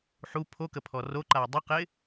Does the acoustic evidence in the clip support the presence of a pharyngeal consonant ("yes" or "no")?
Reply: yes